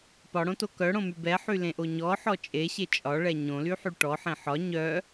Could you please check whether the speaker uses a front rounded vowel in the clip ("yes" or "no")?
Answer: yes